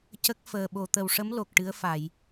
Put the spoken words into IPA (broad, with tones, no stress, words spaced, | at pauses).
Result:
cə˦˥k̚ fəː˨˩ ɓo˨˩˨t̪ə˨˩wʂə˧˥m lo˨˩k̚ʈɨ˧˥ə̯fa˨˩˨j